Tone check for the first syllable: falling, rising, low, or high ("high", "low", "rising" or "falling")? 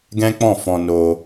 high